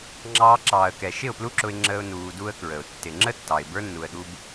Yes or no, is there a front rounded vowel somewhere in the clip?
no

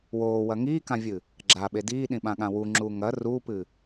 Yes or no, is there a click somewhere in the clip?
yes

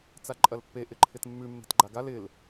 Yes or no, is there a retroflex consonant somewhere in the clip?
no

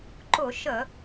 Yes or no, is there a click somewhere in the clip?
yes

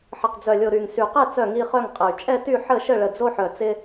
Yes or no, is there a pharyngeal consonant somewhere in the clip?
yes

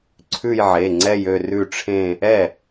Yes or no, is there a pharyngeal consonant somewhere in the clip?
yes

